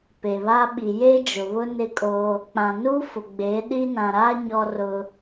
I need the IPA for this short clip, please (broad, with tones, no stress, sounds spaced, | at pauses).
p e˨ β a˦ ɓ i˨ j e˦ d͡ʒ ʊ˨ β ʊ˦ n ɪ˦ kʼ oː˦ | k͡p ã˨ n uː˦ f ʊ˨ ɡ͡b eː˨˦ ɗ i˦ n ã˨ ɾ aː˦ ɲ ɔ˦ r ʊ˦